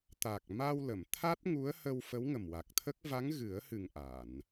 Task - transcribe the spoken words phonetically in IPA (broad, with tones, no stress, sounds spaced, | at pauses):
t̪ a˨˩ k̚ m a˧ w l ə˨˩˨ m t̪ʰ a˦˥ t̚ ŋ u˧˥ ə̯ h ə˧ w f ə˧˥ w ŋ ə˨˩ m w a˨˩ k̚ t̪ʰ ə˦˥ k̚ v a˧˥ ŋ ɣ ɨ˨˩˦ ə̯ h ɨ˨˩ ŋ ʔ a˨˩˨ n